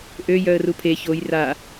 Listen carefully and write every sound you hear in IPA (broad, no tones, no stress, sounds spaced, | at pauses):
ʔ ø j œ ə̯ r u pʰ e ç o j r a